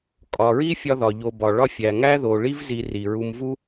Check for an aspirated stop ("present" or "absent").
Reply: absent